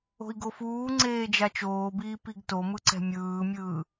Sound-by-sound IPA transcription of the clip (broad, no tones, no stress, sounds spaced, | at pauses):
o̤ i̯ ɡ o f uː ŋ͡ǀ eː d͡ʒ a t͡ʃ oː b iː p i ɡ t o m ɯ ǀ ɛ̤ mʲ ɯː mʲ ɯː